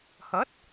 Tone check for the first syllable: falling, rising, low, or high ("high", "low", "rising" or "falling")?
rising